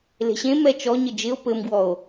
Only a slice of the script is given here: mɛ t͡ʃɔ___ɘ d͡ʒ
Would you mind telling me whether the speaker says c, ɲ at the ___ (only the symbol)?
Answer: ɲ